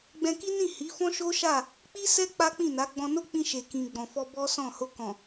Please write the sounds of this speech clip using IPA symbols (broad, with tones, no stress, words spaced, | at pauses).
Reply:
ɡ͡bɛ̃˧ki˦nĩ˦˨ hi˨˦fɔ̃˦ʃo˦ʃa˦˨ | k͡pi˦sɛ˦ k͡pa˦k͡pĩ˦˨na˨˦ ɡ͡bɔ̃˧no˦k͡pĩ˧ ʃe˨kĩ˨ɡ͡bɔ̃˨fɔ˧ bɔ˦sɔ̃˦˨ ho˧kɔ̃˨